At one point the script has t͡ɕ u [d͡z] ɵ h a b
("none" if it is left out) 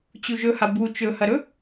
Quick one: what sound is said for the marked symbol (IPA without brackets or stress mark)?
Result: ʒ